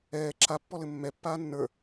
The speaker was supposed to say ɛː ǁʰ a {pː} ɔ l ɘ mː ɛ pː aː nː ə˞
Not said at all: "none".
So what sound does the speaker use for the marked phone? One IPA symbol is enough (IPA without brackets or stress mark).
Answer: pː